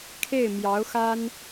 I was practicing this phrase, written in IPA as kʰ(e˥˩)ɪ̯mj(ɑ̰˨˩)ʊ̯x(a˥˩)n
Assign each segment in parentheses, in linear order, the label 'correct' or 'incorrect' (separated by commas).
correct, incorrect, incorrect